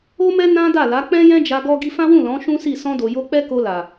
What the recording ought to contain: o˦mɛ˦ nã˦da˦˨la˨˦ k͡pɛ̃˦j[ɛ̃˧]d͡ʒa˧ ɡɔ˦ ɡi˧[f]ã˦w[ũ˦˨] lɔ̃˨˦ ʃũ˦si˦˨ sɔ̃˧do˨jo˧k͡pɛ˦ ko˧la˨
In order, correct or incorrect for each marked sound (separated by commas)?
incorrect, correct, correct